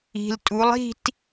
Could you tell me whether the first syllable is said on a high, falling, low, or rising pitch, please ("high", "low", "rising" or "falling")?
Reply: low